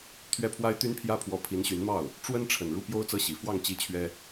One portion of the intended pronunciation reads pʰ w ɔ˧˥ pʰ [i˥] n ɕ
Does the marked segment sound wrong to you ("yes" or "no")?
yes